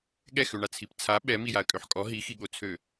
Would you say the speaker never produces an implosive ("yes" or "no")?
no